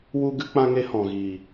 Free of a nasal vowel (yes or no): no